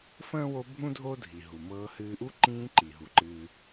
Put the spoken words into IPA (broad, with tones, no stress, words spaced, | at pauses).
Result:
fə̃ː˥wo˦bʱũ˥ dʱo˥ dʱi˩ɦu˩ mɤː˦hɨː˦ ʔu˥ ǃĩː˦ǃi˩ ɦu˩ ǃɨː˨